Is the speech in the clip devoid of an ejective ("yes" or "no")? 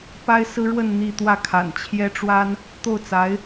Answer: yes